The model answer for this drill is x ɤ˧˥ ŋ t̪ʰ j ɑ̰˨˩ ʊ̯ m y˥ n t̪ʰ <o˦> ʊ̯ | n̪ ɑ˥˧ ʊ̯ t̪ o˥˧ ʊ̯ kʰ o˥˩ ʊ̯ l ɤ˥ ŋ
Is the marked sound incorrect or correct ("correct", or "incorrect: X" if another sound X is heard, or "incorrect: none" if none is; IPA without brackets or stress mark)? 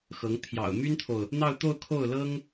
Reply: incorrect: o˨